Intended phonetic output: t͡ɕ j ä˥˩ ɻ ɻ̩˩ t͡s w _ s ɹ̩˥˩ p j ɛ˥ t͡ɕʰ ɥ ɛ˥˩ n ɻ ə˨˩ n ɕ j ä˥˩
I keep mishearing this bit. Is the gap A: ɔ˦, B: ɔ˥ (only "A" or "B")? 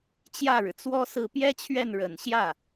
B